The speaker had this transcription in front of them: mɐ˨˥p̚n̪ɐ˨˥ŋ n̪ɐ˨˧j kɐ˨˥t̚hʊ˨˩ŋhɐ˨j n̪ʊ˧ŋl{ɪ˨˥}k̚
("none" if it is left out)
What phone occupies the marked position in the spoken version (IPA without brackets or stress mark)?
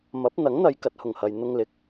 ɪ˨